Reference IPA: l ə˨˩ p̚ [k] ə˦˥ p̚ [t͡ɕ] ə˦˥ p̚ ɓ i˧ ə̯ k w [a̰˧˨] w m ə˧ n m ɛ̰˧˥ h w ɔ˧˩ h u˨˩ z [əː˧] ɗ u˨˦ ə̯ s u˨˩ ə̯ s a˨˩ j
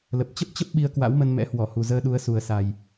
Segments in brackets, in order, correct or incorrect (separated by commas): incorrect, correct, incorrect, correct